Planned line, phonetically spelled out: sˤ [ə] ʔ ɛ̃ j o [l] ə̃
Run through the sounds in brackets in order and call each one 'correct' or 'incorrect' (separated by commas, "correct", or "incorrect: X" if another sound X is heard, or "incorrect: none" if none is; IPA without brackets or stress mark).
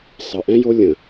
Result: correct, incorrect: lʲ